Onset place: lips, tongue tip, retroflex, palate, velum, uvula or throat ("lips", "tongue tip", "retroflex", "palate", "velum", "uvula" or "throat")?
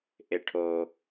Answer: throat